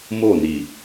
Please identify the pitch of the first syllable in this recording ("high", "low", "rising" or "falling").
falling